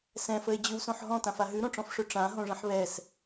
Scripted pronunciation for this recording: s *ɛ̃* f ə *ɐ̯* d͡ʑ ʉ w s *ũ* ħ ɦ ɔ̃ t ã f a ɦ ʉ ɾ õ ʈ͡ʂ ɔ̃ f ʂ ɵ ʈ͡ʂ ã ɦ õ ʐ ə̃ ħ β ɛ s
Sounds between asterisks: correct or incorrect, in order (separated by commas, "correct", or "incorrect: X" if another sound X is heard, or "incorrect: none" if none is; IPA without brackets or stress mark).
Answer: correct, incorrect: e̯, incorrect: õ